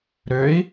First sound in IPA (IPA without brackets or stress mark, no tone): ɾ